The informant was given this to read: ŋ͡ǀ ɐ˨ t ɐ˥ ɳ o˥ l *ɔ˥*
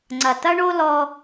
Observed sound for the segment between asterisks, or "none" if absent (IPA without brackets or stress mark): ɔ˥